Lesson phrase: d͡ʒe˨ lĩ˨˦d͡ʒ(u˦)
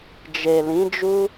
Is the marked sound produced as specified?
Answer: yes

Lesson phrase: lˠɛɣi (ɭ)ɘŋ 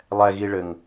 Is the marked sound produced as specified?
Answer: yes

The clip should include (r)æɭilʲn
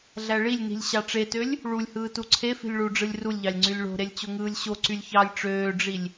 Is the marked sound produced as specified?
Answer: no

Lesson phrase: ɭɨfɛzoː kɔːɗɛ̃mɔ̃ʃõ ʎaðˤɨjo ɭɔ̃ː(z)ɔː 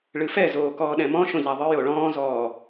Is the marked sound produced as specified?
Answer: yes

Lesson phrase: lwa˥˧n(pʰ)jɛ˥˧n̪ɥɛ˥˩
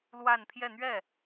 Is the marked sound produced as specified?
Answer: yes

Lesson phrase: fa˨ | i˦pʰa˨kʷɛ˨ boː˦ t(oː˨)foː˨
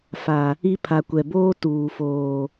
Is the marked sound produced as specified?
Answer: no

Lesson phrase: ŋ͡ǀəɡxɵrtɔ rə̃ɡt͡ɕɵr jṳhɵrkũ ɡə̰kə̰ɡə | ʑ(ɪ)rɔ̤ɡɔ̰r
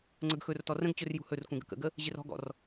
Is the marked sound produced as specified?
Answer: yes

